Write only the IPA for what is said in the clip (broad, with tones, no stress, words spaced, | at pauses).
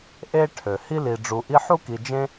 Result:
ʔe˥ʈʰø˩ hi˥li˨ɖ͡ʐu˨ ʔi˦ħu˥ki˨ d͡ʒẽ˦